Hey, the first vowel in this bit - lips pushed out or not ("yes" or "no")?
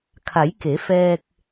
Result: no